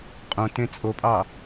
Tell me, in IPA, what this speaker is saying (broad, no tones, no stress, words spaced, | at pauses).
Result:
qʼõ tẽt͡sʼopʼɑ